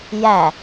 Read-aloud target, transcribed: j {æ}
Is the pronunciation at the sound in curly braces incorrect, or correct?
correct